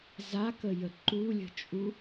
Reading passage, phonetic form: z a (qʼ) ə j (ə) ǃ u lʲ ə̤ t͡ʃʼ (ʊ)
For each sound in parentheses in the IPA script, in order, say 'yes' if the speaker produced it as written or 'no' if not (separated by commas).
no, yes, no